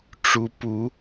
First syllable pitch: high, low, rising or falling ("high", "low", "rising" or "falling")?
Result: rising